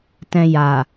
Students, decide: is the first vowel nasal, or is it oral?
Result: nasal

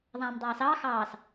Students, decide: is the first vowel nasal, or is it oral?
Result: nasal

